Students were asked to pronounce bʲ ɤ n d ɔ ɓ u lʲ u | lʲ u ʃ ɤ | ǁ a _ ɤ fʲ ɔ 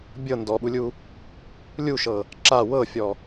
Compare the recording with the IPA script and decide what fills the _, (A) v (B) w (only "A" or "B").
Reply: B